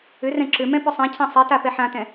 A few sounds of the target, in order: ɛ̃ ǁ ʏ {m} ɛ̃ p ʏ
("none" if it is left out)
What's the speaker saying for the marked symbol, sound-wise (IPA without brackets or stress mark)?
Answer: m